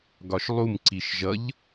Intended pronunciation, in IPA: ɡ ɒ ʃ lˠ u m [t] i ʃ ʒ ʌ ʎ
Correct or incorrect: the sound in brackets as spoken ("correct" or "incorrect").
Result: incorrect